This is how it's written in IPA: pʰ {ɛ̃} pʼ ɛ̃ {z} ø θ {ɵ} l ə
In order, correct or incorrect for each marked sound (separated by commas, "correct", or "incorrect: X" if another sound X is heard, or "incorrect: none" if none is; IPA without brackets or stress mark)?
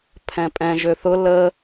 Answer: correct, incorrect: ʒ, incorrect: ʊ